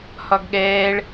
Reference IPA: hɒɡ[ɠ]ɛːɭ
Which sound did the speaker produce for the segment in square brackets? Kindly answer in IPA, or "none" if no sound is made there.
ɠ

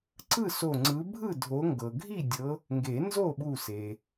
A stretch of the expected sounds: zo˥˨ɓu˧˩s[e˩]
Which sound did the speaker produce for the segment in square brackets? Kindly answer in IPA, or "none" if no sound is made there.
e˩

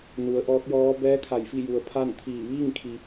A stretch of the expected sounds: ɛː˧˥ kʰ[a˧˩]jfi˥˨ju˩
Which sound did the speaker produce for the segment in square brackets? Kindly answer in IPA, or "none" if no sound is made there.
a˧˩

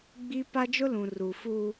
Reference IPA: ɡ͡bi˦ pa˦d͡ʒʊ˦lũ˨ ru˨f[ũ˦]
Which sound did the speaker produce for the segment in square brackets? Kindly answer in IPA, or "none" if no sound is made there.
u˦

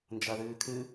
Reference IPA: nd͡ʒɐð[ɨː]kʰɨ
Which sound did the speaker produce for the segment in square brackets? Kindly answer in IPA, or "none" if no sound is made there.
ɨː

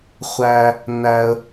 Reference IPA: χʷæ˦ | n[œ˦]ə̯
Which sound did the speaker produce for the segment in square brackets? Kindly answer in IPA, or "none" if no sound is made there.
æ˦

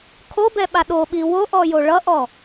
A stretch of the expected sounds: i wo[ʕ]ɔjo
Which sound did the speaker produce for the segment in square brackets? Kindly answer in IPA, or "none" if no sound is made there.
ʔ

